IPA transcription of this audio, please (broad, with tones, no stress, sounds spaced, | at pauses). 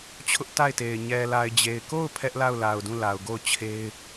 t͡ɕʰ ʊ˦ ʔ t a˦˨ ɪ̯ t e˨ ɪ̯ ɲ ɛ˨ l a˨ ɪ̯ d͡ʑ e˨ ɪ̯ k o˦˨ ʊ̯ pʰ ɛ˦ ʔ l a˦˨ ʊ̯ l a˨ ʊ̯ d ũ˦˨ l a˨ ʊ̯ ɡ o˦˨ ʊ̯ t͡ɕʰ e˦ ɪ̯